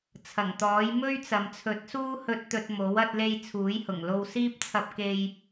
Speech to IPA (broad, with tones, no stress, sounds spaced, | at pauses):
t͡sʰ ɐ˨˩ ŋ t̪ ɔː˨˥ j m ɵ˥ ɥ t͡s ɐ˨ m t͡sʰ ɵ˨˥ t̚ s uː˥ h ɵ˧ t̚ t̪ ɵ˧ t̚ m o˨˥ w ɐ˧ t̚ l e˧ j t͡sʰ uː˨˥ j h ʊ˨˩ ŋ l o˧ w s iː˥ p̚ t͡sʰ ɐ˧ p̚ k e˧ j